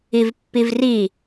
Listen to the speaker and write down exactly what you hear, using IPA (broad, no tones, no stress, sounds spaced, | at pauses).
i v pː i v r i